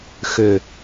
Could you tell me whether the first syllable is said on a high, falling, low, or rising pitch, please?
falling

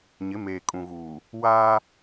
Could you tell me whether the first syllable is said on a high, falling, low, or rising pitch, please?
rising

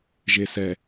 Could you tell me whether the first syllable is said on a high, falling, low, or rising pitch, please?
low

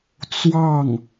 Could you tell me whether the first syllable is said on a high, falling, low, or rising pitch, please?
falling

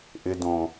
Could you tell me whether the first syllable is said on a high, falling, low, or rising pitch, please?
low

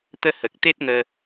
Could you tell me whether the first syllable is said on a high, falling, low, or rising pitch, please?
high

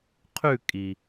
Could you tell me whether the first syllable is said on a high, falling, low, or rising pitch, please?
falling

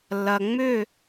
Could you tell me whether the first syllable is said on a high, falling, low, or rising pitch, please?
low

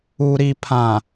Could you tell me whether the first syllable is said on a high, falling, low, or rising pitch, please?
low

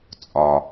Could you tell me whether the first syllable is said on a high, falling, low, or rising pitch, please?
low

